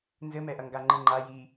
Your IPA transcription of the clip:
n z ɘ m ɛ ʔ ɐ ŋ ɡ a ŋ͡ǃ ɨ ŋ͡ǃ a j i

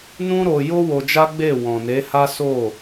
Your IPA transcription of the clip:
n ũ˦ ɾ o˧ j o˦ w o˧ d͡ʒ a˦ ɡ͡b e˦˨ w ɔ̃˨ n e˨˦ h a˦ s o˦˨

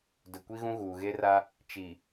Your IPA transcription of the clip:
d ʊ˨ kʷ i˦ ɣ ũ˦ ɣ uː˨ ɣ e˦ r a˦ | t͡ʃ i˨

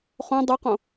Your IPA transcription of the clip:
χ õ dˤ ʉ q õ

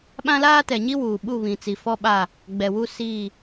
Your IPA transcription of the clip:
ɓ ã˦ l aː˦ t ɛ˨ ɲ i˦ w uː˨ ɓ u˦˨ β ĩ˨ t͡s i˨ f ɔ˦ ɓ a˦˨ | ɡ͡b ɛ˨ w u˦ s iː˦˨

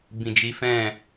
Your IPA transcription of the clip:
b ĩ˨ d͡ʒ i˨˦ f ɛ̃˦˨

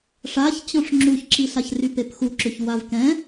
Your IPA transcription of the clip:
ʂ a ç t͡ɕ ɔ̃ ʂ ŋ͡ǁ u ç ǁ i ɬ a ç r y p e p x u ǁ ʏ ç w a v k ɛ̃

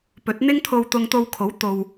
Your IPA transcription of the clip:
p ɵ˨˥ t̚ n̪ ɪ˥ ŋ t̪ʰ o˧ w t̪ ʊ˧ ŋ t̪ o˧ w kʰ o˨˥ w t̪ o˨ w

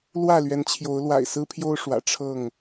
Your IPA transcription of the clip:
l w ä˥˨ l ɥ ɛ˨˦ n t͡ɕʰ j o˨˦ ʊ̯ l w a̰˨˩ ɪ̯ s ɹ̩˦ pʰ j o˦ ʊ̯ ʂ w ä̰˨˩ ʈ͡ʂʰ ɤ˥˨ ŋ

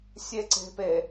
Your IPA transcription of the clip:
sʲ e ǀ e̤ p e

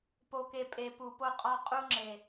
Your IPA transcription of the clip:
p o˨ k e˨ pʼ e˨ p u˨ p o˧ qʼ ɒ˧ qʼ u˧ ŋ͡ǁ e˨

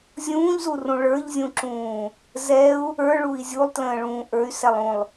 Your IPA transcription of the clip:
zʲ ũː ʎ z u r ũ ɭ ə˞ ʎ zʲ ũ ǁ ũː | z ɛ u̯ | ə˞ ɭ u i̯ zʲ u lˠ t l ə̃ː ɭ ũː ʔ ə˞ y̯ s ɛ lˠ ũ lˠ

